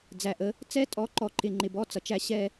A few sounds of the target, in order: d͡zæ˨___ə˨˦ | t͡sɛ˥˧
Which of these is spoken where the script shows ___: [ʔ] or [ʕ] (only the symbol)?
ʔ